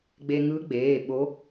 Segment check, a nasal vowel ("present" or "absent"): absent